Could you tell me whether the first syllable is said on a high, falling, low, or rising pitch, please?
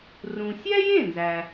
low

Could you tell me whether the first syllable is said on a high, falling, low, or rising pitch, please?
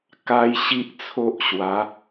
high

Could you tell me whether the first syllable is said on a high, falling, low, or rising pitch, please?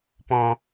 low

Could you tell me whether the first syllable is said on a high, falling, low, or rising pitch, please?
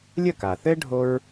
falling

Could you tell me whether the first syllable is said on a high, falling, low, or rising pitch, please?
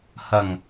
low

